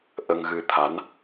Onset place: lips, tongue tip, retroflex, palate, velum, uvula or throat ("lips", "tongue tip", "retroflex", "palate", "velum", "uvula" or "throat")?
throat